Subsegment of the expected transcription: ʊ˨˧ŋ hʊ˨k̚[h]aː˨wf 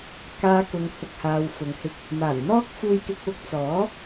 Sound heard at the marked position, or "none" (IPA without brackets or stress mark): h